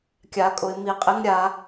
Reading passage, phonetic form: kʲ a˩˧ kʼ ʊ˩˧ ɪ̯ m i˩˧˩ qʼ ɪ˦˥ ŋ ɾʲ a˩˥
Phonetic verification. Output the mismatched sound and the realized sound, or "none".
none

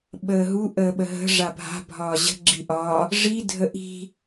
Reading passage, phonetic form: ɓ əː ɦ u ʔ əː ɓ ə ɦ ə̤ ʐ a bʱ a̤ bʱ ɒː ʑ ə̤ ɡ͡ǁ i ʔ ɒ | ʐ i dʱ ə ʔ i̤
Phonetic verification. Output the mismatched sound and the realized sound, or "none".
none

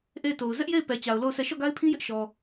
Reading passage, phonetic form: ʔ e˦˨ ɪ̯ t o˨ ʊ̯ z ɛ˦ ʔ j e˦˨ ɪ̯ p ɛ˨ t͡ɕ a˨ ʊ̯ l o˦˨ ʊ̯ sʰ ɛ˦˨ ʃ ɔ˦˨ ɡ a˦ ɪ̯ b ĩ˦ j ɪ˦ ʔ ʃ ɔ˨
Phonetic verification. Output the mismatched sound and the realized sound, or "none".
b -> pʰ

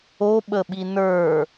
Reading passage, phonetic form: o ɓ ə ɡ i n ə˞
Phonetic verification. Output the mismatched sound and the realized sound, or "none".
ɡ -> ɓ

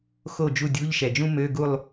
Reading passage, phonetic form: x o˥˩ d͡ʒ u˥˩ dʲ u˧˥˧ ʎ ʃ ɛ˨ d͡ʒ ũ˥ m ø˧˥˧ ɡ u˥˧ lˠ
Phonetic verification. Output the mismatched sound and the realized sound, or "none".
none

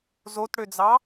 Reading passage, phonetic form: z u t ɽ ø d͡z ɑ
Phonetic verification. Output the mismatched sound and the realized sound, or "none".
u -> o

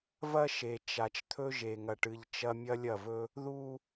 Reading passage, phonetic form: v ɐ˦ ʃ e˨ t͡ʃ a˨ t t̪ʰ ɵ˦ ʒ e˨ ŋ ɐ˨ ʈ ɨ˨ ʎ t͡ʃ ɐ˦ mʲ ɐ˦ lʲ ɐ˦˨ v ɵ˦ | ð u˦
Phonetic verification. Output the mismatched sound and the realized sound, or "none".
t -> t͡ʃ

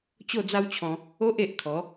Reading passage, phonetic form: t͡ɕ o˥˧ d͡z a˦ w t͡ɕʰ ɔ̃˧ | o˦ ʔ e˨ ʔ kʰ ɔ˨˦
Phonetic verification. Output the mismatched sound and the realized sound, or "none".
none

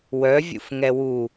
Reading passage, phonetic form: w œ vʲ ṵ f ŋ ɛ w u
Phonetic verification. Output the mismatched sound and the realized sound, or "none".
none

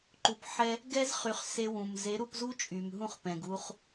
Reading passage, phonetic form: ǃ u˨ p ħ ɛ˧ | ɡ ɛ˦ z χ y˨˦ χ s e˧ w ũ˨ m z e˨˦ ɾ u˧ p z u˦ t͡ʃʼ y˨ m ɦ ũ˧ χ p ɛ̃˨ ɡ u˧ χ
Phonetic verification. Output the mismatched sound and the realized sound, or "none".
none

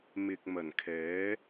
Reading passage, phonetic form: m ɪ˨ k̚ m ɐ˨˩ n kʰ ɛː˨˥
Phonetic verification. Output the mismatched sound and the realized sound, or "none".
none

